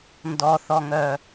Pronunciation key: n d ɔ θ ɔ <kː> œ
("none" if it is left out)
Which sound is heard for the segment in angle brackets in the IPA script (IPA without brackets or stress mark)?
ŋ